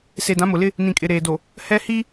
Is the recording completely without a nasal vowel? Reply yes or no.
no